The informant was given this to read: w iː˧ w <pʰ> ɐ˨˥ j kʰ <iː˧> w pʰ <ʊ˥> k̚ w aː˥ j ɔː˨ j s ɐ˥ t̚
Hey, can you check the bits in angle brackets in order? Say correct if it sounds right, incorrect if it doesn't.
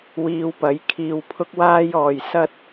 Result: incorrect: p, correct, correct

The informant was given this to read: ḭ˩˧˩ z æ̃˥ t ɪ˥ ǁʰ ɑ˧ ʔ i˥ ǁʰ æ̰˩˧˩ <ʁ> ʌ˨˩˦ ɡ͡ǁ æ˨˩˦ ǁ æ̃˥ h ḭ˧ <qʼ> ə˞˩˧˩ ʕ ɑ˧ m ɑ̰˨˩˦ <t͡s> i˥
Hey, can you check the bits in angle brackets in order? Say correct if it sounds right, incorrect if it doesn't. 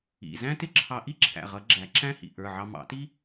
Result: correct, incorrect: ʔ, incorrect: t

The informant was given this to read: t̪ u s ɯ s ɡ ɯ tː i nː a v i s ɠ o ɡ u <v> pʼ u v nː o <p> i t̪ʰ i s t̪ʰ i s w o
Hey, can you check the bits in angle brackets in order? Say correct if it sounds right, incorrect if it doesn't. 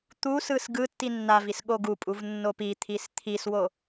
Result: incorrect: none, correct

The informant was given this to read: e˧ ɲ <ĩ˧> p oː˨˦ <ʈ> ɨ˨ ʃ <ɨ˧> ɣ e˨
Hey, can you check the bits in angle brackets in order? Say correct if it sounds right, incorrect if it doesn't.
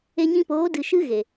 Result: correct, incorrect: d, correct

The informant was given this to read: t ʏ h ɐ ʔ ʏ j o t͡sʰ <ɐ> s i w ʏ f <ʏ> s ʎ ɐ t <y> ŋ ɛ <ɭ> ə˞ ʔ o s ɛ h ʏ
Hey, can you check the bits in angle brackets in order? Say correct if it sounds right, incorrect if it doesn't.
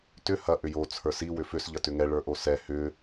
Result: incorrect: ə˞, correct, incorrect: ʏ, correct

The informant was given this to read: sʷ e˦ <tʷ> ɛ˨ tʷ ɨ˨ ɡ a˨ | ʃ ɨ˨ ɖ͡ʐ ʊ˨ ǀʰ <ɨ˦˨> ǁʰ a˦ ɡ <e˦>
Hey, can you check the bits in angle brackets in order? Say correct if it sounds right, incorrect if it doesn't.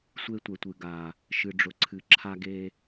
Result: correct, incorrect: ɨ˨, correct

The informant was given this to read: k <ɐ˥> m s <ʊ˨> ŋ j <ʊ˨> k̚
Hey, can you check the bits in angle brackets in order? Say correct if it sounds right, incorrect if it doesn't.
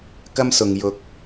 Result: correct, correct, correct

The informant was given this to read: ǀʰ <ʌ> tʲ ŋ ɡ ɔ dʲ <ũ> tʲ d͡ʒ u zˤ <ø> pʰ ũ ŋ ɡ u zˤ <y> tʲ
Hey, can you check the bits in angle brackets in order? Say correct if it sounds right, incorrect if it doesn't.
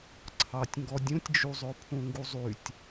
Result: incorrect: ɑ, correct, correct, correct

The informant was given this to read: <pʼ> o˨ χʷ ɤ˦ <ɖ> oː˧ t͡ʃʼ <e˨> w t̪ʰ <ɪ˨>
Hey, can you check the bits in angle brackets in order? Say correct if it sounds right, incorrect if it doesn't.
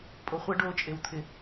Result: correct, correct, correct, correct

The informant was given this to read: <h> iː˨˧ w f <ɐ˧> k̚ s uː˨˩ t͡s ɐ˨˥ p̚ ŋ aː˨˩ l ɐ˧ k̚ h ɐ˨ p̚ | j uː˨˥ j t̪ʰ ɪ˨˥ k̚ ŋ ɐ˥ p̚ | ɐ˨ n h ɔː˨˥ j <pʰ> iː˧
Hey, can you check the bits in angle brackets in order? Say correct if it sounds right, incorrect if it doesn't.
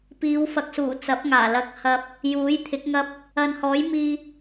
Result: incorrect: p, incorrect: ɐ˨, incorrect: m

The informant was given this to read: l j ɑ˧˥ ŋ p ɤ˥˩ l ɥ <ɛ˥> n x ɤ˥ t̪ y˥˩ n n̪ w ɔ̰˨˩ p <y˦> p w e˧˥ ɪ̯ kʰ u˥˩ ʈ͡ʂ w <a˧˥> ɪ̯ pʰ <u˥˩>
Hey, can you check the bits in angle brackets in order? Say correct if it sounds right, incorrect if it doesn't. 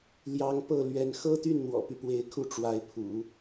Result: incorrect: ɛ˧˥, correct, correct, incorrect: ṵ˨˩˦

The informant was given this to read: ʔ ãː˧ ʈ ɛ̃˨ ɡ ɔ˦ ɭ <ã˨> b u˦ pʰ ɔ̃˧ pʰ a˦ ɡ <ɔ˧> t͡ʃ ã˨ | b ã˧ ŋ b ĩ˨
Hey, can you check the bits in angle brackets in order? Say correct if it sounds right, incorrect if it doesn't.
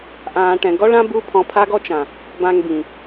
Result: incorrect: ã˦, incorrect: ɔ˦

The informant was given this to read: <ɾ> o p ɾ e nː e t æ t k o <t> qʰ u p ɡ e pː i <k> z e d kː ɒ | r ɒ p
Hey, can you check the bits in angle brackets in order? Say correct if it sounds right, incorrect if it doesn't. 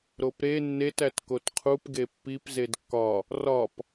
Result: correct, correct, incorrect: p

